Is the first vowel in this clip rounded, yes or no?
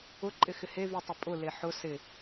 yes